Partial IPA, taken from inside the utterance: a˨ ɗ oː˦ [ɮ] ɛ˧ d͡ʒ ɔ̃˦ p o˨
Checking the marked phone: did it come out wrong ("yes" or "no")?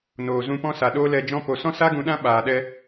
yes